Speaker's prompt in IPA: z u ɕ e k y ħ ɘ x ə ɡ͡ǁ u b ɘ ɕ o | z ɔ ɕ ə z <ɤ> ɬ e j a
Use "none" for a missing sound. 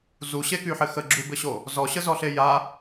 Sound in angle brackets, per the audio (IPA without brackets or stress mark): ɔ